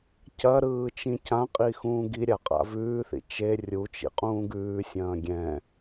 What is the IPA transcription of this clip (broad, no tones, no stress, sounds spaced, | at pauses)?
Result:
c ɐ ɾ ɯː t͡ʃ ĩ c ã qʼ i x ũː ɡ i ɾʲ a qʼ a̰ v ʉː θ ḭ t͡ʃ e rʲ u t͡ʃ ḭ qʼ ũː ɡ ʉː sʲ ɐ̃ː ɡʲ ɛ̃